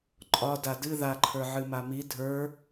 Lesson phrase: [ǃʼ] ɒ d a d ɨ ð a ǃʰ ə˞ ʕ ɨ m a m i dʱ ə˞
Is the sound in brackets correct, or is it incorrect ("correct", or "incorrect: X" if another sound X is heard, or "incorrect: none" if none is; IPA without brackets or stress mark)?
correct